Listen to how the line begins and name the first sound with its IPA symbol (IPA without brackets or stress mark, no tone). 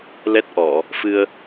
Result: l